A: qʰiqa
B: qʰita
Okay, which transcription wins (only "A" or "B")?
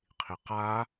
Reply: A